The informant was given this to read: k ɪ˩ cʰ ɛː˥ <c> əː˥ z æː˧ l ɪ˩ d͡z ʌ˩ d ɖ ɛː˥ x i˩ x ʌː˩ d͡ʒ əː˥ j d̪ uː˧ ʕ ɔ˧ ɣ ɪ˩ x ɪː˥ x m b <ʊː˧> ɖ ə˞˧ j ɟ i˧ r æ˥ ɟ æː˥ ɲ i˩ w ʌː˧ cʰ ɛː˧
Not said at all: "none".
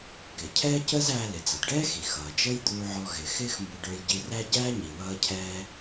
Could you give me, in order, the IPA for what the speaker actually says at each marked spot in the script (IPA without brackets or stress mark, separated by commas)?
c, ʊ˧